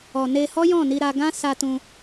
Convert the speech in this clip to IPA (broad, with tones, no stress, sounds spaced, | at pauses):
ɔ˨ n e˧ h ɔ˦ j ɔ̃˦˨ n i˧ ɾ a˧ ɡ ã˦ s a˧ t ũ˧